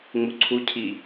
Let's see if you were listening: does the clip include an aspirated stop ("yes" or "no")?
yes